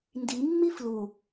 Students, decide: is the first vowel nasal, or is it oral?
oral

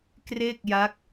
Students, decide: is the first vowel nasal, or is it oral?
oral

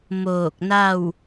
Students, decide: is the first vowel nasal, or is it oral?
oral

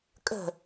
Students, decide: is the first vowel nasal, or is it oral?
oral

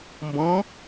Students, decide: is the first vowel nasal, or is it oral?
nasal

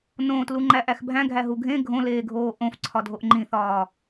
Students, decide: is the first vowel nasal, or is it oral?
nasal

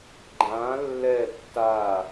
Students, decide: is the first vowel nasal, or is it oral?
nasal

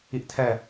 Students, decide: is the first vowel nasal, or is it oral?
oral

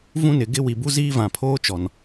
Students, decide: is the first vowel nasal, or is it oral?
nasal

